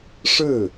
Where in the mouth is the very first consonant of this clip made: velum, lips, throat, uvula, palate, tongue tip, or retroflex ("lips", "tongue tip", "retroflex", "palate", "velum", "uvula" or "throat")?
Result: retroflex